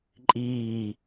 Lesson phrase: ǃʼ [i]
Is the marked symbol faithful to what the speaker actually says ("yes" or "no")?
no